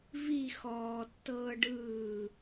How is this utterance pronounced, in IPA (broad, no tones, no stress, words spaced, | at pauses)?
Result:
vi xɔːtːɤː ɖɯː